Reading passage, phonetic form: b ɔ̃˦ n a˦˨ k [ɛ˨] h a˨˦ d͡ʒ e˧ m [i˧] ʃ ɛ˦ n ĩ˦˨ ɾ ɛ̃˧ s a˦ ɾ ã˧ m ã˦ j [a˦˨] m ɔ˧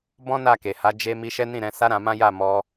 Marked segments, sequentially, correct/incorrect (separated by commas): incorrect, correct, correct